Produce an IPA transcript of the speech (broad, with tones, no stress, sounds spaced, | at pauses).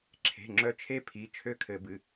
ǁʰ e̤˩˧˩ ŋ͡ǁ œ˧˩ t͡ʃʰ e˦ pʰ i˩˧˩ t͡ʃʰ ø˦ kʰ ɘ˨˩˦ b ɨ˩˧˩